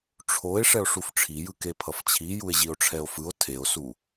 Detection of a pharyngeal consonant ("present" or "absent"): absent